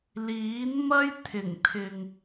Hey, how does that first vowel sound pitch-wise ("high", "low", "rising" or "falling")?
rising